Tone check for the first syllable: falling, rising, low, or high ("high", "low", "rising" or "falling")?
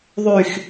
falling